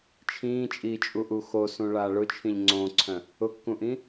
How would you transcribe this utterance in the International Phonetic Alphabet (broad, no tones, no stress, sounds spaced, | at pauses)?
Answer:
t͡ʃʰ ĩː t͡ʃʼ iː t͡ʃʼ u ʔ u x o s ũ ɭ aː ɭ ʊ t͡ʃʰ ĩ ʎ ŋ͡ǀ õː ǀʰ œ̃ | ʊ kː ũ ʔ ĩ